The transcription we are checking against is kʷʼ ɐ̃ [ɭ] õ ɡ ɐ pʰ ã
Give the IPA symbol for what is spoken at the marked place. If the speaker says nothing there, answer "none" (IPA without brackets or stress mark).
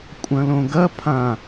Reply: l